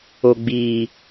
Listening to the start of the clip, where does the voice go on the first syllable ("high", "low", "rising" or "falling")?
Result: low